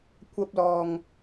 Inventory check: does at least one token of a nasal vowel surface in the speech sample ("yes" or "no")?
no